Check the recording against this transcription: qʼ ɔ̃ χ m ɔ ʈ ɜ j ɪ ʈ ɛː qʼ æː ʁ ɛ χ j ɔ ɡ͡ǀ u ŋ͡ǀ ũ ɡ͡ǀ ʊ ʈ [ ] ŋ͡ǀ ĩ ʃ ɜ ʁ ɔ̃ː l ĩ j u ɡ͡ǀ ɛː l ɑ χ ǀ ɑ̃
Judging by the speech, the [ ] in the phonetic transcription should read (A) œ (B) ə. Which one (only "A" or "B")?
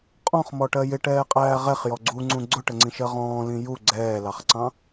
B